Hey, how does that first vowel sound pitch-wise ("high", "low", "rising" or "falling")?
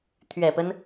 low